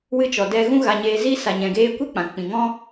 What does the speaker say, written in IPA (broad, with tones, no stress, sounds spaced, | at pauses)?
w ɨ˧ t͡ʃ ɔ˨ d ɛ˧ ɣ ũ˦ ɣ a˧ ɲ eː˧ z iː˦ s a˨ ɲ ɛ̃˨ ɡ eː˧ kʷ e˦ k͡p ã˨ k͡p ĩ˨ ŋ ɔ̃˦